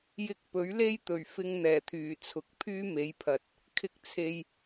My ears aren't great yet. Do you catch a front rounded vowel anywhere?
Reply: yes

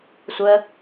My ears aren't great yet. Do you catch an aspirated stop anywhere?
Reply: no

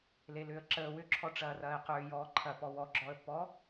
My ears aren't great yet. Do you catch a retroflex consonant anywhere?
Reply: yes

